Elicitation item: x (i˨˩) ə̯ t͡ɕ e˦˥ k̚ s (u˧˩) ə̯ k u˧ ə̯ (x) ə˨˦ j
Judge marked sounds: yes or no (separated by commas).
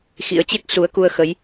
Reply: no, no, yes